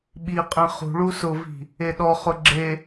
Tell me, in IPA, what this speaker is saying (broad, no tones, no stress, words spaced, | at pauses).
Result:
ɓiqʼẽ χṳɭu sʊvi̤ | eɗɔχʊ ɡ͡ǁe